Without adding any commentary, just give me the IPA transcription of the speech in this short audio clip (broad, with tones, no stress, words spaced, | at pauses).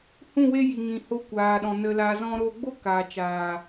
hũ˦˨we˦ji˨ ŋĩ˨ho˧ kʷaː˨ɗɔ̃˨ nə˧laː˧zɔ̃˦ ɾoː˧ɡ͡bo˦ kaː˨t͡ʃaː˨